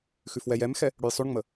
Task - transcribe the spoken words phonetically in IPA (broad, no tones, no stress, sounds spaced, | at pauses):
x ʉ f w ɛ j ɛ m x ɛ | ɽ ʉ j sˤ ʉ ɳ ŋ͡m ə